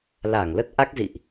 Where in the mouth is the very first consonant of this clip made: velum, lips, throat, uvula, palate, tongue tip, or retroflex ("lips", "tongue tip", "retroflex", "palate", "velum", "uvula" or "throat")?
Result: tongue tip